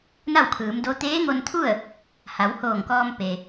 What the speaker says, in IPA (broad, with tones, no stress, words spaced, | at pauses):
na˥˨wkʰɯː˩˧mdo˧˥ t̪eː˧˥ŋo˧nt̪ʰu˥˨ə̯ | ha˩˧whoː˧˩ŋkɔː˧m pe˩